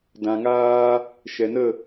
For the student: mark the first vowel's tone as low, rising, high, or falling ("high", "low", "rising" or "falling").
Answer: low